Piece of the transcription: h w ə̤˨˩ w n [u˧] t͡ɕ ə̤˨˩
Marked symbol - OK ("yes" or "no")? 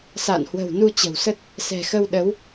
yes